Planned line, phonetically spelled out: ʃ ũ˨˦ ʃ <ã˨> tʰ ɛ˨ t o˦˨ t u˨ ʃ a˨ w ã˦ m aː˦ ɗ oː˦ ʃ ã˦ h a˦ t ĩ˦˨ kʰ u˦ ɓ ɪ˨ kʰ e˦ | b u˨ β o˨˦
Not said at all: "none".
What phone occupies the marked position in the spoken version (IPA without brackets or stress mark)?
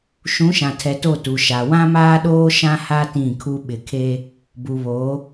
ã˨